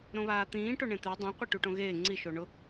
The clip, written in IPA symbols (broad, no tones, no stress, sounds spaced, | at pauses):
ɾ õ β aː t̪ ĩː ʈ o ɳ ẽ t̪ e dˤ ã qʷ ɛ ʈ u ʈ õ ɣ eː ŋ͡ǀ i ʃ o ɳ ʊ